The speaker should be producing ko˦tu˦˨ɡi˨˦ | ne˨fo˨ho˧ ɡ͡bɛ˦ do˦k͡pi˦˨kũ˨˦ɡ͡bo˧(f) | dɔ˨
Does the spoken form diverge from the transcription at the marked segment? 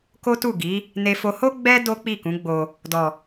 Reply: yes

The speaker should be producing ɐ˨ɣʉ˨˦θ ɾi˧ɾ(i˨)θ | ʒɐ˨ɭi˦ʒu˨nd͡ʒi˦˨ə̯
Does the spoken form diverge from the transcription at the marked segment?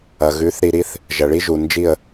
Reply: yes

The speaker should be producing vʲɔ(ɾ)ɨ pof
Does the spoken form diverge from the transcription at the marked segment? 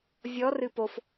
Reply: yes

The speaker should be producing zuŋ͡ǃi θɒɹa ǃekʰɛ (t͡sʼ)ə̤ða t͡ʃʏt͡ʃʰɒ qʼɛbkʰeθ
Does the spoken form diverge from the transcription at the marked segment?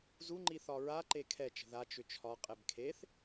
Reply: yes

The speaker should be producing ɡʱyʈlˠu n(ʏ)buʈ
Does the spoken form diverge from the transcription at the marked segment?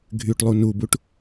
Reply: yes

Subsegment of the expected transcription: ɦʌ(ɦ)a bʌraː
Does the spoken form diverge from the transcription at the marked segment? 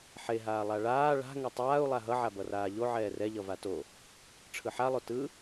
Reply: yes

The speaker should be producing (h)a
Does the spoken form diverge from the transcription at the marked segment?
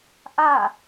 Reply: yes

